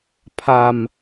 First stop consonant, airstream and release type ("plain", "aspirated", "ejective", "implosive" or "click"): aspirated